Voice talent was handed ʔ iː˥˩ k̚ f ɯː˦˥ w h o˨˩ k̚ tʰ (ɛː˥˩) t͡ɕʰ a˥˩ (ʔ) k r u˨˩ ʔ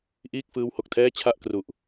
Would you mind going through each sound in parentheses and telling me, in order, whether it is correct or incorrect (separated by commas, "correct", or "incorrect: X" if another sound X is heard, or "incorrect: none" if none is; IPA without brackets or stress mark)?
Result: correct, correct